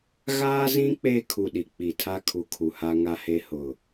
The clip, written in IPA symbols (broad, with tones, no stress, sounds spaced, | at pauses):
ɣ aː˦ z ĩ˦ k͡p eː˦ kʰ u˨ ɗ i˨ k͡p i˨ tʰ a˦ kʰ u˨ kʰ u˨ h a˦ ŋ a˦ h e˦ h ʊ˨